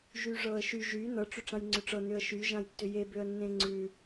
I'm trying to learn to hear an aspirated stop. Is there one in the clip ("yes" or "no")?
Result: no